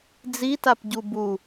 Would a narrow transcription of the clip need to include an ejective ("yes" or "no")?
no